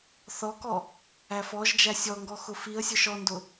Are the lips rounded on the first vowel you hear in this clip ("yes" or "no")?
yes